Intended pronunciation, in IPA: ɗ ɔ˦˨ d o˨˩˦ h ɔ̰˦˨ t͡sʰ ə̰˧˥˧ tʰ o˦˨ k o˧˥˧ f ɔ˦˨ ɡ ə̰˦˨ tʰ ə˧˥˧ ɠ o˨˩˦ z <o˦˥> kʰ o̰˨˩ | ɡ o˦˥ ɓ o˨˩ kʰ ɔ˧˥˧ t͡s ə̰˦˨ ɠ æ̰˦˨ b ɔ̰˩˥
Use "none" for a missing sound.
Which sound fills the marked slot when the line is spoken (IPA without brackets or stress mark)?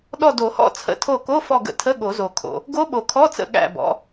o˨˩